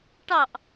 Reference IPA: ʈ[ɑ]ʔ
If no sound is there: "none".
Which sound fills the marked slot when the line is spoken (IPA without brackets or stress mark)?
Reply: ɑ